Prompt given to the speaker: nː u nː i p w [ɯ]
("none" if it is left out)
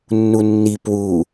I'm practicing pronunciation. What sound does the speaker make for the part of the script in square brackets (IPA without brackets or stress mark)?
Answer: u